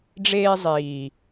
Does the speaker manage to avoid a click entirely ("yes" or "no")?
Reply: yes